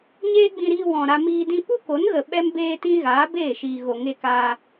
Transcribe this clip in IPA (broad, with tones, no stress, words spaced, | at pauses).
ɲeː˦ɡ͡bĩ˧ɾiː˧ wɔ̃˨ ɾa˧miː˧dĩ˦ pu˦ko˨˦nɣə˨ ɓɛ˦mbeː˦tĩ˦ ɣaː˨˦beː˦˨ʃiː˨ɣo˨ ŋe˧kaː˧